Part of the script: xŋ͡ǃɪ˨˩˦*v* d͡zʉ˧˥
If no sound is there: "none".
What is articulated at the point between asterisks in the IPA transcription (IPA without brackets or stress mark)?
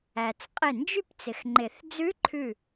θ